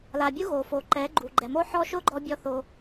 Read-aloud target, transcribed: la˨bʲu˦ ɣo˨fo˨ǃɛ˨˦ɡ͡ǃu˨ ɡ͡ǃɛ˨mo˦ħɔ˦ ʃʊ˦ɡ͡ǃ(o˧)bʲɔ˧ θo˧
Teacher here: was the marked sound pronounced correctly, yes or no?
no